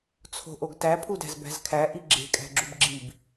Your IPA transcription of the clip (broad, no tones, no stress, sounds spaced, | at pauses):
t͡sʰ o̤ ʔ o ɡ t æ pʰ u d æ̤ z b æ̤ z kʰ æ ʔ i ɡ͡ǁ e̤ kʼ æ̤ ɡ͡ǁ u b ɡ͡ǁ i b